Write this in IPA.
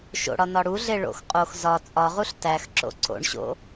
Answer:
ʃ o̰ ɽ ɒ n ɒ ɽ u ɮ e ɭ o̰ x qʼ o x z ɒ t͡sʼ ɒ ʁ u ɬ t æ x ǁ o̰ ǀ o̰ ɳ ɕ o̰

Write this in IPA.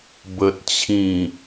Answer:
b ə˨ t̚ t͡ɕʰ ĩ˨˩

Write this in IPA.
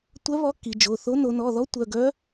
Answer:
tʷ œ˧˥ β ɔ˧˥ kː i˩˧ d͡ʒ o˩˧˩ θ o˧˥ n o˩˧ n ɔ˩˧˩ ð ɔ˧˥ tʷ œ˩˧˩ ɡ œ˧˥

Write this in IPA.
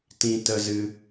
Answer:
t ĩ˧ t ə˧ z ɨ˧

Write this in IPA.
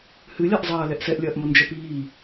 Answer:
h ɨ lʲ a ʔ zˤ ɐː l ɛ ʔ s ɛ ʔ lʲ ɐː ʔ m o n d͡ʒ ɛ p iː

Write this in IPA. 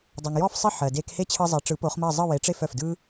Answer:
dˤ o˩ ŋ j ɔ˥˩ f sˤ ɘ˥˩ ħ ɜ˩ d e˧ k h e˥ t͡ɕʰ ɯ˧ zˤ e˩˥ ʈ͡ʂ ɯ˩˥ p o˩˥ χ m ɜ˥˩ zˤ ɯ˥˩ w e˩˥ ʈ͡ʂ e˥˩ f œ˩ f d ɯ˥

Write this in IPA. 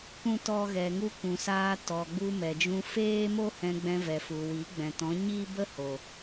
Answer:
kʷ ũ˦ t ɔ˦ ɣ ɛ˧ ŋ u˦ kʷ ũ˨ s aː˧ t ɔ˨ ɡ͡b u˧ m ɛ˨ d͡ʒ ũ˧ f eː˦ m o˦ h ɛ̃˧ ɡ͡b ɛ̃˧ v ɛ˨ f u˨ w i˨˦ ɡ͡b ɛ̃˨ t ɔ̃˨˦ ɲ i˦ b ə˦ h o˨

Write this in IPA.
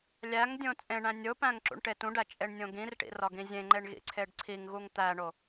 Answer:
lʲ æ ŋ dʲ õ t͡sʼ ẽ ɳ æ̃ nʲ o p æ̃ ŋ ǁ ṵ ɳ ʈ e t ũ ɖ æ t͡ʃʼ e ɳ nʲ õ ɡ ĩ r ʈ ḭ r ɒ ɡ ĩ zʲ ẽ ŋ͡ǃ e ɳ ɣ ḭ ǀʰ e ɖ ǀʰ i ŋ ɣ u ŋ t̪ æ ɳ o

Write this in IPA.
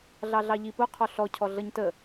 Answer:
ɮ ɑ ɮ ɑ ʎ i p ʊ qʰ ɔ ɬ ɔ cʰ ɔ ɮ ʌ ɲ t ə

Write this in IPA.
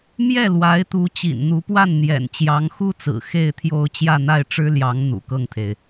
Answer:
m j ɛ˥˩ l w a˧˥ ɪ̯ t̪ u˧˥ t͡ɕ ḭ˨˩ n n̪ u˧˥ p w a˥˩ n n̪ j ɛ̰˨˩ n t͡ɕ j ɑ˧˥ ŋ x u˥ t͡s ɹ̩˨˩ x e˥˧ ɪ̯ t̪ʰ j o˥˧ ʊ̯ t͡ɕ j ä˥˧ n̪ a˥˩ ɪ̯ ʈ͡ʂ ɻ̩˥ l j ɑ˧˥ ŋ n̪ ṵ˨˩ k ɤ˥˩ ŋ t̪ʰ e˩ ɪ̯

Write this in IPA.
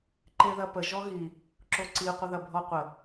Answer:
ǃ e ð ɐ p ə ʒ ɔ ɣ i | ǁ o ǀ i qʷ ə ð ɐ bʱ ɔ qʷ ə

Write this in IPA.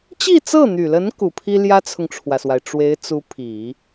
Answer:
t͡ɕ i˥˧ t͡s ɤ˥˩ n̪ y˨˩ l ə˧˥ n k u˨˩ pʰ i˥ l j ä˥ t͡sʰ ʊ˨ ŋ ʈ͡ʂʰ w ä˩ s w a˩ ɪ̯ ʈ͡ʂ w e˧˥ ɪ̯ t͡s u˧˥ pʰ i˨˩˦

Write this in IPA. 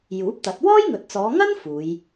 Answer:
j uː˨˥ p̚ t̪ ɐ˨˥ t̚ w ɔː˥ j ŋ ɵ˨ t̚ t͡s ɔː˨˧ ŋ ɐ˥ n f uː˨˧ j

